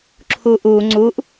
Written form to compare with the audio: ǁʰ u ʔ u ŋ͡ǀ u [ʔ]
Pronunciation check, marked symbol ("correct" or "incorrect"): correct